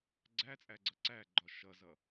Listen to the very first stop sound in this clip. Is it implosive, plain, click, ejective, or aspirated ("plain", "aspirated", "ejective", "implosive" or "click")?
click